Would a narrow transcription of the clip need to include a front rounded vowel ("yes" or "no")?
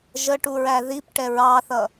no